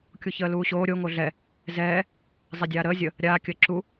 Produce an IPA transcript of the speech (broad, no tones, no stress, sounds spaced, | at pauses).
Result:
kʲ u ç əː l uː ɕ oː ɾʲ o ŋ o ɮ ɛ | z ɛː | zˤ ɛ dʲ aː ɾ əː zʲ ə | ɾʲ aː kʲ əː ǁ u